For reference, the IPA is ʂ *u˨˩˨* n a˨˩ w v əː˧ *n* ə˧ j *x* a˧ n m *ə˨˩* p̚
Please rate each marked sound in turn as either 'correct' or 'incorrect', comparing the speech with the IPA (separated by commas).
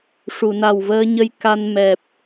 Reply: correct, incorrect, incorrect, incorrect